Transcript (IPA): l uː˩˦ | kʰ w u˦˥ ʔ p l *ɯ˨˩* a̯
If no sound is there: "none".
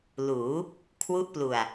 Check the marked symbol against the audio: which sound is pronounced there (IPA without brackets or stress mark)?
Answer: u˨˩